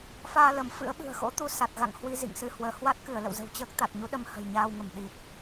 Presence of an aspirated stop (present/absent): absent